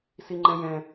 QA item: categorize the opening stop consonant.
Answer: click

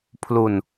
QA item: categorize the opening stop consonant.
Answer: aspirated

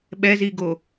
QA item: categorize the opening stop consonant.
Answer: implosive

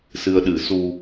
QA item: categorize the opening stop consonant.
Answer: implosive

